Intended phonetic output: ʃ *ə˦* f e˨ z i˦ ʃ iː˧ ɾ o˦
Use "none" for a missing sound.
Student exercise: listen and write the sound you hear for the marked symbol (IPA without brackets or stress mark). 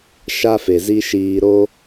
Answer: a˦